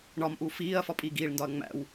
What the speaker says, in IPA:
ɳɒmʔu fiːɐ̯fɒ pʼiːɡiːɭndɒɐ̯ ŋ͡mæ̰w

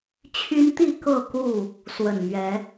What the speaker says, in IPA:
t͡ɕʰy˦nt̪i˥˨ kɤ˥˨ku˥˨ | swə˨˩nmɥɛ˨˦

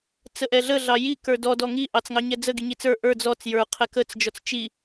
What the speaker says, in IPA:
t͡səʔɛɮə ɮɑji kə˞dɔ dɔŋi ʔɑt͡sŋɑɲɛd͡zə ɡiɲit͡sə˞ ʔə˞ d͡zɔt͡s jə˞ qʰɛkət͡s d͡ʒɔt͡st͡ʃi

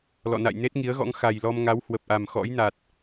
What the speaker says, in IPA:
lɔ̰˧˨ na̰˧˨j ne˦˥t̚ŋi˨˦ə̯ɣɔ̰˧˥ŋ xa˨˩jlɔ˧m ŋa˨˦whwə˨˩p̚ʔa˨˩m xɔ̰˧˥jna˨˩t̚

